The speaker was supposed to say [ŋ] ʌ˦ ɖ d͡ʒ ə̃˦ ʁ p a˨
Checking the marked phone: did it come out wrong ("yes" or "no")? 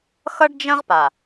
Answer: yes